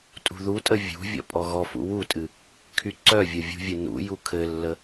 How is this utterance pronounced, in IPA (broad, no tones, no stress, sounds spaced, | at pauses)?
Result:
tʼ ṳ ð u tʼ ə vʲ ṳ vʲ ɔ̰ pʼ ɔ ɣ ɔ f ṵ w u tʼ ɨ | kʰ y ǀ œ vʲ ə vʲ ṳ vʲ ɨ n ṵ j u kʰ ɘ lː ə